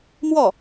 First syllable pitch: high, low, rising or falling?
falling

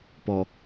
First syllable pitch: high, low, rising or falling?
low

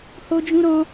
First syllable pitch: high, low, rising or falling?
high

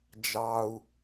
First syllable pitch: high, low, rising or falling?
low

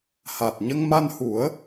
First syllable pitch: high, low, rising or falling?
low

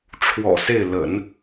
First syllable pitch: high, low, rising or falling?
low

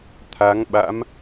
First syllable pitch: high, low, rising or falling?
rising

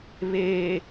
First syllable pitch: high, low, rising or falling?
low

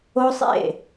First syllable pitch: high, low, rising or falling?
high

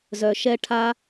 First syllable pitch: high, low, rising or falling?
low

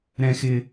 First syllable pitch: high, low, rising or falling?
high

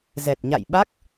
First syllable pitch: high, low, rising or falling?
low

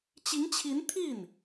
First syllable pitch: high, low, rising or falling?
rising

